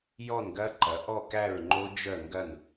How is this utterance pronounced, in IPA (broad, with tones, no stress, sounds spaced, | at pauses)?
j ɔ˥˧ n ɡ ɐ˦˥ ǃ ɐ˨˦ ʔ ɔ˥˧ k æ˥˧ ɹ ŋ͡ǃ o˦˥ d͡ʒ œ˥˧ ŋ ɡ ɐ˥˧ n